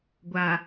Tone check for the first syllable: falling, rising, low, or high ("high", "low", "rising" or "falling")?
low